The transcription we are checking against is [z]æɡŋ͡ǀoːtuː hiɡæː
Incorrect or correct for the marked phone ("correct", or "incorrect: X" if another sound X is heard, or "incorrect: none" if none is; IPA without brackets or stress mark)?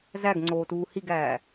correct